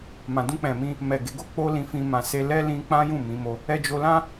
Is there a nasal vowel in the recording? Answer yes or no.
yes